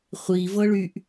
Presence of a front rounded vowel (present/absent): present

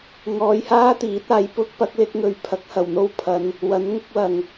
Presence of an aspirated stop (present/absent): present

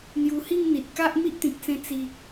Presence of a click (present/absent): absent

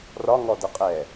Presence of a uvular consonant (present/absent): present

